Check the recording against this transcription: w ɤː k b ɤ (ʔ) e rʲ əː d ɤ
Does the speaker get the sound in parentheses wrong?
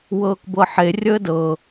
yes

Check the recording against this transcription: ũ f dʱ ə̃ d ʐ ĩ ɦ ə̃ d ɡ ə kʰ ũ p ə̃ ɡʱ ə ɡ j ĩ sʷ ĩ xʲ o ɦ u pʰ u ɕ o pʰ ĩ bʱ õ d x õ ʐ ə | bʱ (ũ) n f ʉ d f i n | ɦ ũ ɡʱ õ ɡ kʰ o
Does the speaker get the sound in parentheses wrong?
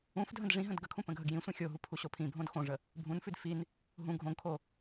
no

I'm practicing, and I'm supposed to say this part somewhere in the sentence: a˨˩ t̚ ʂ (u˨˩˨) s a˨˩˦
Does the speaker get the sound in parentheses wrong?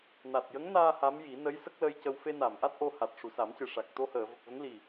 yes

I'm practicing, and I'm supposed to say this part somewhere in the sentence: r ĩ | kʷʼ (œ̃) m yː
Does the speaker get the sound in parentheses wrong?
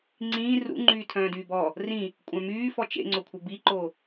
no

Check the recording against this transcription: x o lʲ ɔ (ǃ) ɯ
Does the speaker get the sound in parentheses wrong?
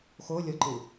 no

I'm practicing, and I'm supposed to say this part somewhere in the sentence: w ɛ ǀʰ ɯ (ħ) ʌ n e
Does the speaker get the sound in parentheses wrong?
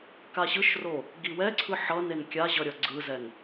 no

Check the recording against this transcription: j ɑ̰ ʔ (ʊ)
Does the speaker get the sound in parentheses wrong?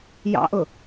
no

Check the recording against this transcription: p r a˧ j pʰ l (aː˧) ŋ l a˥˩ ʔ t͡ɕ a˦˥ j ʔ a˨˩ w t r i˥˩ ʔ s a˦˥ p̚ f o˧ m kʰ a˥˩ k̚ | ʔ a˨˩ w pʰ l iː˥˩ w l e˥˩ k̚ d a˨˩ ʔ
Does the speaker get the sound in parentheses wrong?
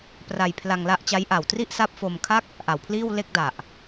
yes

